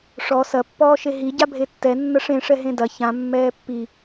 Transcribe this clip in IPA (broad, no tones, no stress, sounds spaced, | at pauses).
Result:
ʂ ɔ s ɐ pː ɔː ʃ e ɦ i ɟ a bʱ e tː ɛ nː ɐ ʂ ẽ ʂ ɛ ɦ ẽ d ɐ ç ã mː ɛː pː i